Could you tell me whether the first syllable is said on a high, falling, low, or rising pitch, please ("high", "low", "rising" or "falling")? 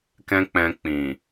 high